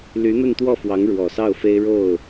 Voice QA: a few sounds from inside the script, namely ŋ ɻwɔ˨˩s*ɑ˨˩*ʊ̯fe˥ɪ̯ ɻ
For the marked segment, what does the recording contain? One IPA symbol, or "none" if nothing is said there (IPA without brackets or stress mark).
ɑ˥˩